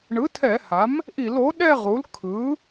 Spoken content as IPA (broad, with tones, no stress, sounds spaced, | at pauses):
ɳ ɯ˩˥ tʰ ɛ˧˩˧ h a˩˥ m | ʔ i˧˩˧ l o˩˥ ɗ ɛ˥˧ ʁ u˩˥ l kʰ ɯ˩˥